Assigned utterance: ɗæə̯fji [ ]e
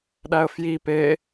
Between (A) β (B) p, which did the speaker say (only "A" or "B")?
B